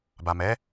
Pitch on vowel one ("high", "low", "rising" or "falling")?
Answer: low